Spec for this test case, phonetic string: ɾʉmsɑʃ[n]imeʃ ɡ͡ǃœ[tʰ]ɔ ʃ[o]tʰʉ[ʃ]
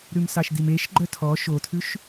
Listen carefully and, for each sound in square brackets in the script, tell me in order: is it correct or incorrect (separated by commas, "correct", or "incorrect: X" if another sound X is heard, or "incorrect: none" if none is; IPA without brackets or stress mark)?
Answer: incorrect: d, correct, correct, correct